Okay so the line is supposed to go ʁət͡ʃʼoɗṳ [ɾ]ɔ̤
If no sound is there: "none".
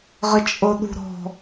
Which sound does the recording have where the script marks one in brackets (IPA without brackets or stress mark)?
ɾ